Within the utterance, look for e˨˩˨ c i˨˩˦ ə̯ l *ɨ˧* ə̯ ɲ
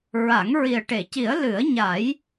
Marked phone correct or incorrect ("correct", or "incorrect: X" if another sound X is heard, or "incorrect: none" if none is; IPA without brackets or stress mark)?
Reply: incorrect: ɨ˨˩˦